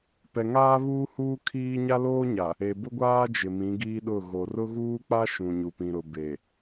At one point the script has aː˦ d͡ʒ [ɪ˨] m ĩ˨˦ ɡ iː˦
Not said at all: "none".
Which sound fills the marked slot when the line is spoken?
ɪ˨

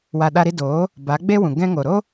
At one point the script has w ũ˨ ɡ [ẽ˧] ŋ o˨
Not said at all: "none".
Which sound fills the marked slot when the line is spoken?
ɛ̃˧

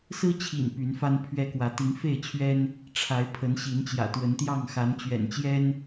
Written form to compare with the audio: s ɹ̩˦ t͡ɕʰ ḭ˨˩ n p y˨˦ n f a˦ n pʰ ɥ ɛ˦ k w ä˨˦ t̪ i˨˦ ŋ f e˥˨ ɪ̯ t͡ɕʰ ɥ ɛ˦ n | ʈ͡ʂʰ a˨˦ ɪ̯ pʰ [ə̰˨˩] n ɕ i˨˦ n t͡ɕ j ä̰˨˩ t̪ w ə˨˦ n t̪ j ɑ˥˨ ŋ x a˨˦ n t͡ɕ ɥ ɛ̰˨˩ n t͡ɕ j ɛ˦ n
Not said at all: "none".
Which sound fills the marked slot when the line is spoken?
ə˨˦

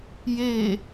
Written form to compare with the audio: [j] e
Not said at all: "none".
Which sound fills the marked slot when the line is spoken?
j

